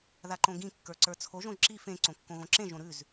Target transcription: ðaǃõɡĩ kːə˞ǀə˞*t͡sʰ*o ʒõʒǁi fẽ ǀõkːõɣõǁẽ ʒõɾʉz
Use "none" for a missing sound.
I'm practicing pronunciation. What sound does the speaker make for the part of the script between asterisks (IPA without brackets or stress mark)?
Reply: t͡sʰ